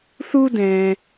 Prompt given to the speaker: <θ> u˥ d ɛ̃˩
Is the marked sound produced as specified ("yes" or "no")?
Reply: yes